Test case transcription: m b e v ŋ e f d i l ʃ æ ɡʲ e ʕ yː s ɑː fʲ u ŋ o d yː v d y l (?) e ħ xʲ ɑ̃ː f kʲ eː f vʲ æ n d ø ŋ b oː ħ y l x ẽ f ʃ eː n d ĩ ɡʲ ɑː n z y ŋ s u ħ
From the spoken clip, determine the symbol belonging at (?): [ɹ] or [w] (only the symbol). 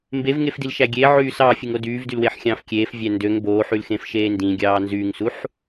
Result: w